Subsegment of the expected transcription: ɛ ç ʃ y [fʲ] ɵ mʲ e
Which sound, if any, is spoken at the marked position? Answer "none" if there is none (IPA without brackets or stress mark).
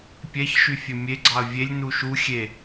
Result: fʲ